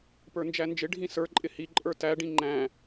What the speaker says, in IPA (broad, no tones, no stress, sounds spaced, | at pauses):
p ə˞ n d͡ʒ æ n d͡ʒ ɪ ɖʱ ĩ s ə˞ ǃʼ ɪ h i ǃʼ ə˞ t æ ɖ ĩ ŋ͡ǃ æ̃